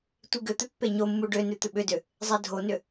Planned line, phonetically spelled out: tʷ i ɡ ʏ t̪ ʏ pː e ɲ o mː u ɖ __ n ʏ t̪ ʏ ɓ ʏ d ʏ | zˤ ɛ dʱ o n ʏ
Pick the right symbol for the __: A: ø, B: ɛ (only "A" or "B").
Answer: A